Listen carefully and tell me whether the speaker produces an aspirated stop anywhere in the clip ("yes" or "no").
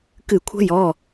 yes